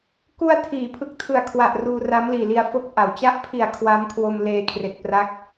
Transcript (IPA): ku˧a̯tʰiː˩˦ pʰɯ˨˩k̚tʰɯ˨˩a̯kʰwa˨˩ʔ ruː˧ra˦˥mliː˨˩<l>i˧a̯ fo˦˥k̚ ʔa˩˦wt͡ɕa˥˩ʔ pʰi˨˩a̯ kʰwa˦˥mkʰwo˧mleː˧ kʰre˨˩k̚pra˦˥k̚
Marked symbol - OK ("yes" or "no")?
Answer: yes